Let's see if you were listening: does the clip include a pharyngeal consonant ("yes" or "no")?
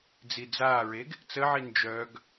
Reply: yes